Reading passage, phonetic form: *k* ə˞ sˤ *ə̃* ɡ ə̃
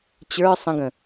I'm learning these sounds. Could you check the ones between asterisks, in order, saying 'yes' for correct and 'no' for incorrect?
no, yes

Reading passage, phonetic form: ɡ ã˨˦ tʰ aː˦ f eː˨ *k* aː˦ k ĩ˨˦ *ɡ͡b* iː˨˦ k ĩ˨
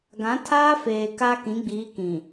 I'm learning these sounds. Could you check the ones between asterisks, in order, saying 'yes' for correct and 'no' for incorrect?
yes, yes

